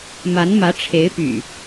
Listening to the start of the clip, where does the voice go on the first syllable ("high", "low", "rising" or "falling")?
rising